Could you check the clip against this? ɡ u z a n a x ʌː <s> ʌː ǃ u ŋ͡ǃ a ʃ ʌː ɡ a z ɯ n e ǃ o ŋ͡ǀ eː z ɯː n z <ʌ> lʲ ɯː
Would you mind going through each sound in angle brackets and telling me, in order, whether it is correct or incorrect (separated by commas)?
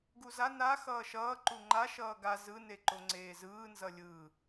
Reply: incorrect, correct